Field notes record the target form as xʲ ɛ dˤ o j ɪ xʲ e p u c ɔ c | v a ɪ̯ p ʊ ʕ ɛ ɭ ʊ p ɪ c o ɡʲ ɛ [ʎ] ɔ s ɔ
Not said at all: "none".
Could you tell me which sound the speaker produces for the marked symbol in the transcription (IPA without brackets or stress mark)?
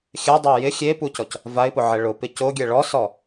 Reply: ɭ